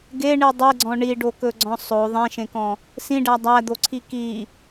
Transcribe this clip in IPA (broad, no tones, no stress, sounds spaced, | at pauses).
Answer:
ɡ e ɳ i dˤ e ɡ͡ǀ ɔ̃ ɳ i ɖ o k ɵ ɡ͡ǀ ɔ̃ sˤ o ðˤ ẽ ʃ ẽ k ɔ̃ | s ĩ ɖ æ dˤ æ d̪ o ǀʰ i k i